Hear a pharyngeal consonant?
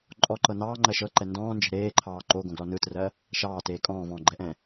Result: no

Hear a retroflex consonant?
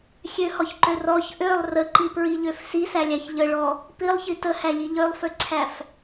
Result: yes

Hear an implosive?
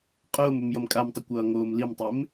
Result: no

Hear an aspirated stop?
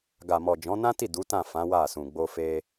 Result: no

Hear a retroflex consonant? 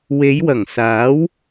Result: no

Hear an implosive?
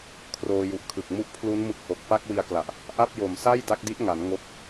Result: no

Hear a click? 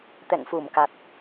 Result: no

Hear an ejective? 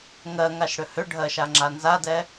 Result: no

